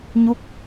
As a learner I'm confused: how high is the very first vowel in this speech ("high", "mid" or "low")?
high